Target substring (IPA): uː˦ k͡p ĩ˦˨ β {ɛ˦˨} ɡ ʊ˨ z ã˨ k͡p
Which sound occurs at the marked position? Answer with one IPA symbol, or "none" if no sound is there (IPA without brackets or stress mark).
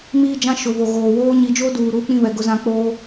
ɛ˨